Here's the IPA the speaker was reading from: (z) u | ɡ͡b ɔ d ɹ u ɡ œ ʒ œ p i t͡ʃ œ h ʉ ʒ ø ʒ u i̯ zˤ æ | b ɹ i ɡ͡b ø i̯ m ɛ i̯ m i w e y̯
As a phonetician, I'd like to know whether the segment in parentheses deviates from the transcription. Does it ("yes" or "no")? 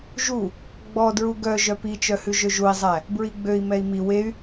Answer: yes